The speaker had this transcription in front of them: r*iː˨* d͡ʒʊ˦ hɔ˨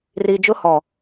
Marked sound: correct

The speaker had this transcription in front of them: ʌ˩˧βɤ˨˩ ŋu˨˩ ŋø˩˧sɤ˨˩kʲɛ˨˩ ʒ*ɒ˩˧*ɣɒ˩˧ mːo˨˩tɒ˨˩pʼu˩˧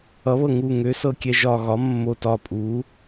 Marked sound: incorrect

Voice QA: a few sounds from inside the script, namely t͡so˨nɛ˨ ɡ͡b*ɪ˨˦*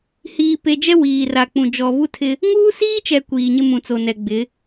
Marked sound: correct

